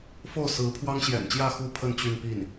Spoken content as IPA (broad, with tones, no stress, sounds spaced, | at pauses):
f o˥˩ ʊ̯ s ɹ̩˧˥ pʰ w ɑ˥ ŋ ɕ j ɛ̰˨˩ n t͡ɕ j ä˥˧ x u˥˧ pʰ ə˥˧ n t͡ɕ y˥˧ n p i˥˩ n